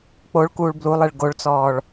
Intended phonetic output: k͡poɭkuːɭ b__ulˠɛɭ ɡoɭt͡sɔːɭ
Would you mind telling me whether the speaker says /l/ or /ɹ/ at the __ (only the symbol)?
l